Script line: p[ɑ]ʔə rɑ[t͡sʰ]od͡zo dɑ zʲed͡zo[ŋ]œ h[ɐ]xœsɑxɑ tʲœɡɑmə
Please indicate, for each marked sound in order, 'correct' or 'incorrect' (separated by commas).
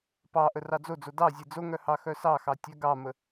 correct, incorrect, correct, incorrect